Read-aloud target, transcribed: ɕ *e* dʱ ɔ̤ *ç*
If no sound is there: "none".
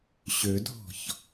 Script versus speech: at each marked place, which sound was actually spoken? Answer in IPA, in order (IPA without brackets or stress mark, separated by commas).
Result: ø, ç